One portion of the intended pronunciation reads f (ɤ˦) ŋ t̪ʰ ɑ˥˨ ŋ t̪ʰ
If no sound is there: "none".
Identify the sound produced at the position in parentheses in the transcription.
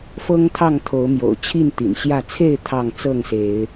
ɤ˦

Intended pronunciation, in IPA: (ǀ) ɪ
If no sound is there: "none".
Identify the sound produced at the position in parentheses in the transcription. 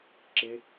ǁ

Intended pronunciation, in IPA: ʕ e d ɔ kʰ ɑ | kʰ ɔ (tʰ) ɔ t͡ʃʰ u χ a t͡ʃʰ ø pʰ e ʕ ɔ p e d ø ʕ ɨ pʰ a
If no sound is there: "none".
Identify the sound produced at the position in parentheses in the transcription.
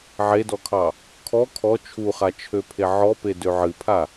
kʰ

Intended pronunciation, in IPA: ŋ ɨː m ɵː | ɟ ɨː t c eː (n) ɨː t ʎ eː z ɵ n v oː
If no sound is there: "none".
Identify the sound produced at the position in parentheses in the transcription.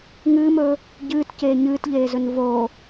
ɲ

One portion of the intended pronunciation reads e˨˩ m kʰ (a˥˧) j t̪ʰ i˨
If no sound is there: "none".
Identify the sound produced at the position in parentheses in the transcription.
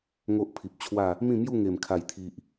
a˨˩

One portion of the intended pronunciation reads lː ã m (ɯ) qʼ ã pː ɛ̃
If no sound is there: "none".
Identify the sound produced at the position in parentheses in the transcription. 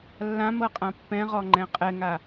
ɤ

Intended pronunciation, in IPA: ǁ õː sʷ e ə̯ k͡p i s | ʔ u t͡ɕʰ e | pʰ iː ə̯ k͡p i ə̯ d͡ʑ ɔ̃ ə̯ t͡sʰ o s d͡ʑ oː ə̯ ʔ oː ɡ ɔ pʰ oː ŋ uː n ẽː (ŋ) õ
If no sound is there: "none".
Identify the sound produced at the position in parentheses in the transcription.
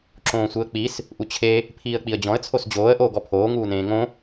ŋ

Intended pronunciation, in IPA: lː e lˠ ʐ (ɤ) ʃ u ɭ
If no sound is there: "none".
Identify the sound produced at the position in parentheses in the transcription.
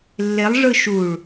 ɯ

